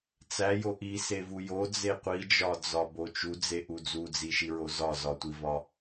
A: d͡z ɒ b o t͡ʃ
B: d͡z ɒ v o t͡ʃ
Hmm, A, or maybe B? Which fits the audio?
A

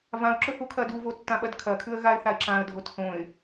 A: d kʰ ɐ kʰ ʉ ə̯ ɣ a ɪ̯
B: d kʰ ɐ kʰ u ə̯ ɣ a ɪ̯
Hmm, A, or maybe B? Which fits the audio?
A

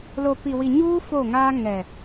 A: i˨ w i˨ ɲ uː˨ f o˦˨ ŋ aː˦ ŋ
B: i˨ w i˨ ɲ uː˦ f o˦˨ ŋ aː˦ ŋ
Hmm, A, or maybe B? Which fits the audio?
B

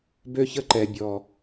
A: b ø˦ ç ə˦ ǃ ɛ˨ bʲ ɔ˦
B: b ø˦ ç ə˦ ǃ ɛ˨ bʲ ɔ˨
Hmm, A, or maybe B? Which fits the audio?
B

